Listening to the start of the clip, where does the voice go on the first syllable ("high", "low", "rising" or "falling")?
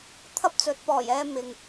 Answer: high